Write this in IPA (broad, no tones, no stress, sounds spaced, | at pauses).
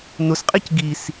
n ʊ s qʼ i c ɡ i s